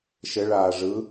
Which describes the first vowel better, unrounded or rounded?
unrounded